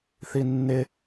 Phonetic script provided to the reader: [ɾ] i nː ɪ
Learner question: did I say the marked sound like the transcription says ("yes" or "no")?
no